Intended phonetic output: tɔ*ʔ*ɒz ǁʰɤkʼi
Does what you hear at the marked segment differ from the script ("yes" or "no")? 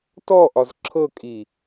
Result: no